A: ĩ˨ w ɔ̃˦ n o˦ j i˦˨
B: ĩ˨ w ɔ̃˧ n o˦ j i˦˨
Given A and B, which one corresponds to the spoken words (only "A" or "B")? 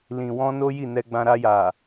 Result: B